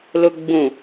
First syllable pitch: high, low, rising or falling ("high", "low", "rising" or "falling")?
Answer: low